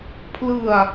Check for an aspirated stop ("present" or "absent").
present